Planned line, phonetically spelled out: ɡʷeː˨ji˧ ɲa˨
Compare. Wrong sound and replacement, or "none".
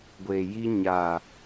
none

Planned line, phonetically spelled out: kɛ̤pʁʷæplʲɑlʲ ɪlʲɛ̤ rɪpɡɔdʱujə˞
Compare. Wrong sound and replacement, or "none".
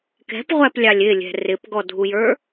none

